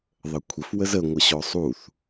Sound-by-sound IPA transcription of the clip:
ðˤ ə kʷʰ ə f w ə z ə ŋʷ ə ɕ ɔ sˤ u θ

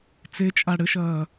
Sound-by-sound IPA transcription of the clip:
t͡s e t͡ʃʼ a ɽ ɘ ʃ ɐː

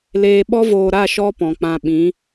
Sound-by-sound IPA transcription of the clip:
l eː˧ ɓ ɔ˦ v oː˧ ɾ a˦˨ ʃ ɔ˦ p ɔ̃˨ k͡p ã˧ ɓ ĩ˨˦

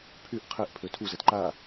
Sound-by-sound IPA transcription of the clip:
pʰ y ʔ qʰ ɛ ʔ pʰ ø tʰ u z ɛ t ǃ a

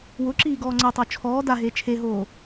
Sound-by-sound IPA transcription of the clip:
w ʊ ǁ iː ɡ ɔː ŋ͡ǀ ɛ tˤ o t͡ʃʰ ɔː d a ɦ eː t͡ʃʰ e ɦ oː

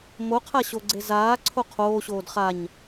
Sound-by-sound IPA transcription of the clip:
m o qʰ a ɕ o ɡ͡ǀ e z aː ǀʰ o qʰ oː ɕ oː d χ a ɲ

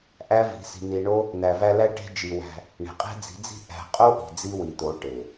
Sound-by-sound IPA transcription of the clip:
ʔ æ˦ v i̤˨˦ s i̤˧ n̪ i˧ ɳ o˦ | n̪ æ˨ v æ˧ l æ˦ ʈ e̤˧ d͡ʒ i˨ w æ̤˧ | ɳ e̤˨ qʼ e̤˦ d͡z i̤˨˦ d͡z i̤˦ ʔ æ̤˧ qʼ o˦ ʔ i̤˨ d͡z i˦ w i˨ t̪ o˨˦ ʈ e˨

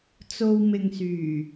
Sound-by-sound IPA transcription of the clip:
t͡s o˧ w m ɪ˨ ŋ s yː˨˩

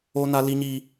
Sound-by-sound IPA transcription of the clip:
o˦ n a˦ l i˦ ɲ i˦

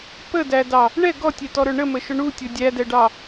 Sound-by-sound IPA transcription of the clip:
p ə d æ d ɑ | ɳ ɛ ɡ ɔ tʲ ɛ t ɔ ɾ ə˞ ɳ ə m ə ʃ ʊ ɳ u tʲ ʊ dʲ æ d ɛ ɖ ɑ

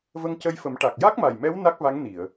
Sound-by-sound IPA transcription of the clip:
v ə˧ ŋ c ə˧ j f ə˨˩˦ m ʈ a˨˩ k̚ j a˦˥ k̚ m a˨˩ j m ɛ˧˥ w n a˦˥ k̚ v a˧˥ ŋ n i˨˩˨ ə̯

